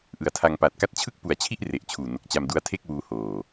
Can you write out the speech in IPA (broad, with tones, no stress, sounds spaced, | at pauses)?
ʔ ɯ˨˩ a̯ tʰ a˧ ŋ p a˨˩ t̚ k a˥˩ t̚ t͡ɕʰ ɯ˥˩ k̚ p u˨˩ a̯ t͡ɕʰ i˥˩ ʔ r e˨˩ ʔ t͡ɕʰ uː˨˩ n o˨˩ k̚ t͡ɕ a˧ m d u˦˥ a̯ tʰ e˥˩ k̚ w uː˧ h oː˨˩